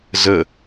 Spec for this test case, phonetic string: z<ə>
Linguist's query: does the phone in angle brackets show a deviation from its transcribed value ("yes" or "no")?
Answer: no